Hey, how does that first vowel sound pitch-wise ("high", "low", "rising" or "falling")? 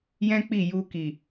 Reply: high